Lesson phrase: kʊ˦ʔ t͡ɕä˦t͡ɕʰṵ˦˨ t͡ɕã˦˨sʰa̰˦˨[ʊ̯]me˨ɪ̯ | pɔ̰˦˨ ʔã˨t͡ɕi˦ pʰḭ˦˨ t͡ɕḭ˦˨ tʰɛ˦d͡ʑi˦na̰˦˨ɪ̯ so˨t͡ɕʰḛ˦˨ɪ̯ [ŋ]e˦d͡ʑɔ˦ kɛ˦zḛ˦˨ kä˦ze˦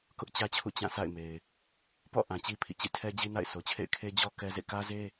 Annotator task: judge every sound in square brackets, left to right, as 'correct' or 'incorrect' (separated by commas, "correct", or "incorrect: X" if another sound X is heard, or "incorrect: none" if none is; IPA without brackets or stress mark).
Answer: incorrect: ɪ̯, incorrect: kʰ